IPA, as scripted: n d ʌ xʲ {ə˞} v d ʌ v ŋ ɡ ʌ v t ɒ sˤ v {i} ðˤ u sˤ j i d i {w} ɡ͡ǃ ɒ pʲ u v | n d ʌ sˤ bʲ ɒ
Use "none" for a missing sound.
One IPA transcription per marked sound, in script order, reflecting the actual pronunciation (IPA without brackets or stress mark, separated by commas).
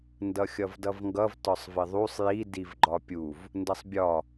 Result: ʌ, ɪ, v